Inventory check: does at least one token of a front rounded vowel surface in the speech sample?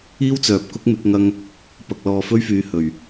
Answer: yes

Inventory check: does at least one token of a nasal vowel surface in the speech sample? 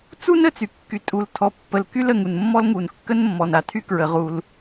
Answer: no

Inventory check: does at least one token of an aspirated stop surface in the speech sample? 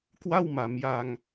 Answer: no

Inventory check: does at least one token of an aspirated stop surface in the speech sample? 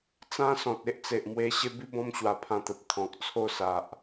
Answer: yes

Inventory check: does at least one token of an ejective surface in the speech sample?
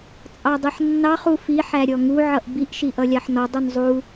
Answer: yes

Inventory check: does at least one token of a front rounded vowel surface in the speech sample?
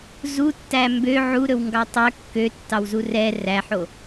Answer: yes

